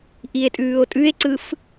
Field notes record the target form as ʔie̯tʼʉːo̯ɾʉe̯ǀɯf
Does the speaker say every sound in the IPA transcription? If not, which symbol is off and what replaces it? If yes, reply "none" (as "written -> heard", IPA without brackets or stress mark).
ɾ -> tʼ